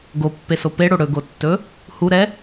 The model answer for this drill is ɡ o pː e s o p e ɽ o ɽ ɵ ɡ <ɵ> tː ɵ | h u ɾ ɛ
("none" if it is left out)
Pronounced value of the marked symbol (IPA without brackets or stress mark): o